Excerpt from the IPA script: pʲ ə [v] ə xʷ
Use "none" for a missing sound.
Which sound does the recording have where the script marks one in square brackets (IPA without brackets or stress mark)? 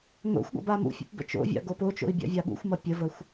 v